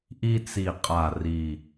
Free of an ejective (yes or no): no